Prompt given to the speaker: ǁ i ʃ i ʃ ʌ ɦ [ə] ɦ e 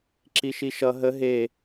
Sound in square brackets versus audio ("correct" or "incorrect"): correct